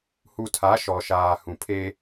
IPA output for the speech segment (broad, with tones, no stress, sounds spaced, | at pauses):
h u˨ tʰ a˨˦ ʃ ɔ˨ ʃ aː˨ h ũ˨ pʰ e˦